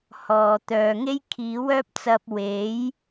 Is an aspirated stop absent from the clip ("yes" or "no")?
no